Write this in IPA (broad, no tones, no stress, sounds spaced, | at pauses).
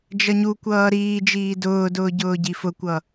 d͡ʒ ʌ ɲ u kʷ ʌː ɾ iː d͡ʒ iː d ʊː d ʊː ɟ ʊː ɟ i f ʊ kʷ ʌ